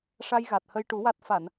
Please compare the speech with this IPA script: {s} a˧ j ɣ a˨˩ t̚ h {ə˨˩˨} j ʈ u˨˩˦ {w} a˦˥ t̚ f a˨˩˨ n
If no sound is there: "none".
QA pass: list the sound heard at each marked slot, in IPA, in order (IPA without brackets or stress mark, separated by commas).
ʂ, ə˧, w